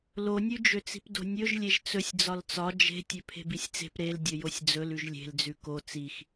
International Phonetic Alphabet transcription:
l o nʲ ʉ d͡ʒ ø t͡s i̤ p d o̤ nʲ ɵ ʒ lʲ e ʒ t͡s ɵ sʲ d͡z ɒ l t͡s ɒ d͡ʒ e̤ tʲ ø pʰ e̤ b i sʲ t͡s e̤ p ɾ e l dʲ ɵ j o sʲ d͡z ɵ l ʉ ʒ lʲ e̤ l d͡z ʉ k o t͡s i x

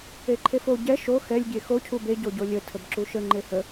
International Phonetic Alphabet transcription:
e ǃʰ e f o ɟ ɛ ʃ o x ɛ lʲ ɡʲ e x o cʰ u b e ɟ o ɟ o lʲ ə tʰ ə b ǁ u ʃ ə ŋ͡ǃ e h ə

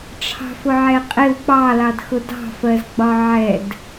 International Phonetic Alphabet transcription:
ʈ͡ʂʰ ɑ̤ f ʊ ʕ ɛ qʼ ɪ w k͡p ɑ l ɑ d x ʊ d ɑ̤ f ɜ z ɡ͡b ɒ ʕ ɛ d

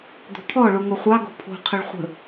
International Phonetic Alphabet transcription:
d̪ o̤ t̪ʰ ɔ ɭ u ŋ o χʷ ɑ ɡ o̤ pʰ o̤ qʰ ə ɭ χʷ ə̤

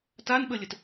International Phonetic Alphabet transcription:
t a n ɓ ə lʲ ə t

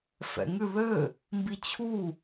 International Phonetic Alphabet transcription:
f ɛ̰ ŋ ɨ ð ɘ | m b i t͡ɕʰ u

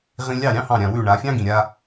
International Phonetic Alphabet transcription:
ʁ ĩ˧ lʲ ɑ˥˩ ɾʲ ɑ̃˥ h ɑ̃˥˩ ɾʲ ã˩ w ʉ˥˩ ɳ a˩˥ fʲ ɑ̃˥ ɡ ĩ˩ ɾʲ a˧

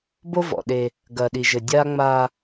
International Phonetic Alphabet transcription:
b o˦ v ɔ̰˨ ɗ e˦ | ɡ ɐː˨ ɗ i˨ ʒ ɘ˨ dʲ aː˦ ŋ͡m aː˦

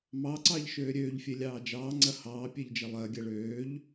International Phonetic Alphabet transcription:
m ɑ ǀ ɑ ʎ ʃ øː ɾʲ øː ʎ fʲ e lʲ ɑː d͡ʒ ɑː ŋ͡ǀ ɐ h ɑː pʲ e ʎ d͡ʒ ɐ lˠ ɐː ɡʲ ɐ ɭ øː ʎ

